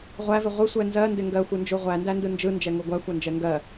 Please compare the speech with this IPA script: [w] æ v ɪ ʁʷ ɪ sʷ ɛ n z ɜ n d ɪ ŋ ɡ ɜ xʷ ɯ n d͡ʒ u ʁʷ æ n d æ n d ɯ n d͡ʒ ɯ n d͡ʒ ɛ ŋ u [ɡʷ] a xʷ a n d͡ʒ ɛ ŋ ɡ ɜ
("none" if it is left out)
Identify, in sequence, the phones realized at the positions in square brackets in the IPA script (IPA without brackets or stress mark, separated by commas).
ʁʷ, ɡʷ